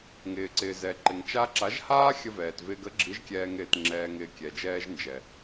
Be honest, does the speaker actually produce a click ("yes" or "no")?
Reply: yes